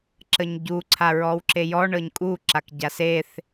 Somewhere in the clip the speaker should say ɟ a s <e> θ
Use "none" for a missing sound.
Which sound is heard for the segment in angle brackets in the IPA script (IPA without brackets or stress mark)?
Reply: e